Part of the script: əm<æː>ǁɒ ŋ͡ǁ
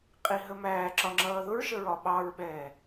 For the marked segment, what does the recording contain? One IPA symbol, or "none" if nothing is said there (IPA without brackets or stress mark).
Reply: æː